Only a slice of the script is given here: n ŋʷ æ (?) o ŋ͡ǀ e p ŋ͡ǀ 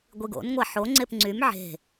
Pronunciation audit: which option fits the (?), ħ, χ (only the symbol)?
ħ